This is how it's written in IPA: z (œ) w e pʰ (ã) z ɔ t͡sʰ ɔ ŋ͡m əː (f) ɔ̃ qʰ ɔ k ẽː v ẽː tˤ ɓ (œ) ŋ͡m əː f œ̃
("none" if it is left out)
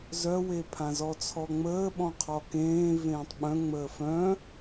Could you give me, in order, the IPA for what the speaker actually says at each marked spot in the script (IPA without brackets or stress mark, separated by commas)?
œ, ã, ɓ, œ̃